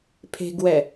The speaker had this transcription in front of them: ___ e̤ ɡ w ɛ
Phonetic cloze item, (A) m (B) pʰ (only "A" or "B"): B